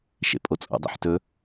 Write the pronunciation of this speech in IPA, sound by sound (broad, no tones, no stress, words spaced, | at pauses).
ʃḛpʼot͡sʼo̰dˤḛħ tɵ